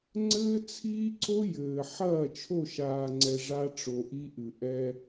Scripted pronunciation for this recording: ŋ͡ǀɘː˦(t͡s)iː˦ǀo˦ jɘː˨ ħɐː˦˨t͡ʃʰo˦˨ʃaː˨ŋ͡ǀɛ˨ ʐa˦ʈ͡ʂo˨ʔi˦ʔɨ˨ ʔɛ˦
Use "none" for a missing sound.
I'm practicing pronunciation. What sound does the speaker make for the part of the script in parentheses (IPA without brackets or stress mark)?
t͡sʰ